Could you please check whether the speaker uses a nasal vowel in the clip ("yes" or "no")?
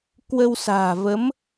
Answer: no